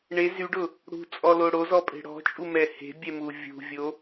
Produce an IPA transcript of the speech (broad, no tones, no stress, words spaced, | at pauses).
ɳe zyɖʊ | ɽṳt͡sʼɔlo ɽozɔpʼe̤ ɽɔ̤t͡ʃʼumɛ he̤bʲɛmu vʲṳvʲo